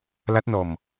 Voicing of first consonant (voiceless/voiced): voiced